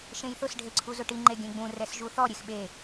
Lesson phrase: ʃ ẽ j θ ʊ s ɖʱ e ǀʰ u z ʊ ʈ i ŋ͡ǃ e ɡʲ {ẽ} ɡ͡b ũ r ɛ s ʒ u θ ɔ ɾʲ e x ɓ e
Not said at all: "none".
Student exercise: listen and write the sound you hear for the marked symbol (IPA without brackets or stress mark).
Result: ẽ